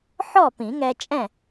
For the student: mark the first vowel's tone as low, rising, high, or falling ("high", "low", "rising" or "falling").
falling